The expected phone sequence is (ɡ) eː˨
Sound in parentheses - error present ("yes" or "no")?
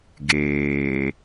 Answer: no